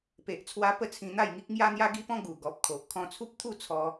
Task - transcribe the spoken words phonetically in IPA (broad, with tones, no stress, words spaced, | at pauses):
pe˨ʔt͡sʰwa˧ pə˥˧t͡sʰĩ˧n̪a˥˧jŋi˦k̚ ŋja˦n̪ja˦ɡi˦pɔ̃˦ ɡu˨˩ ɡɔ˨p̚ kʰo˨ʔ kʰɔ̃˧t͡sʰu˦p̚t̪ʰu˥˧ t͡sʰɔ˧